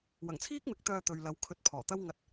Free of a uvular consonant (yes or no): yes